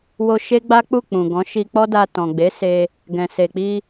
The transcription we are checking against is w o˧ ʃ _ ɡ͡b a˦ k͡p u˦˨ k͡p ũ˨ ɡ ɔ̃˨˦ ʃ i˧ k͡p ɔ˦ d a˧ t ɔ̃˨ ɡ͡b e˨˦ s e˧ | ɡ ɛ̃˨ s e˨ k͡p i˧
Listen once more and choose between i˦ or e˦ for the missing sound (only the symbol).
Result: e˦